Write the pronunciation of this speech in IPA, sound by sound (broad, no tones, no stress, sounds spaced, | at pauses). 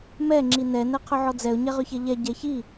m ɛ ŋ͡ǁ i n ɛ n ɛ qʰ ʏ ʕ ɔ d͡z ɛ ʊ̯ ɲ ɛ ʁ ʏ ç ɛ ʎ ɛ ɟ ɛ ç i